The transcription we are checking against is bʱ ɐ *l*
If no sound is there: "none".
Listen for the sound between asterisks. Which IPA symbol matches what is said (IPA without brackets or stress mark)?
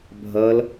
l